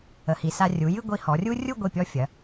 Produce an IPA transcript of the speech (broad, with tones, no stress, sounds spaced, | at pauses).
ə˩˧ h i˩˧ s a˧ rʲ u˩˧ j ɨ˥˧ ɡʷ i˧ h ɔ˩˧ rʲ u˥ rʲ u˥˧ ɡʷ i˧˩ pʲ ɔ˧ fʲ ɐ˩˧